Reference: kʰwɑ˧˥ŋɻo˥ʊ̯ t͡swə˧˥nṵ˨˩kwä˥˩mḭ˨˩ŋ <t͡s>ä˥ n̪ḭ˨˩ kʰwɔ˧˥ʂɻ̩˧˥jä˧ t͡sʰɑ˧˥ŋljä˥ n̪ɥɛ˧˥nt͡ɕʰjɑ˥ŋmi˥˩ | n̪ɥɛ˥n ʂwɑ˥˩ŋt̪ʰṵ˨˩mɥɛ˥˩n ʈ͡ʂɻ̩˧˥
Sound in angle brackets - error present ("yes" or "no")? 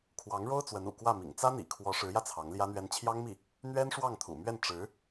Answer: no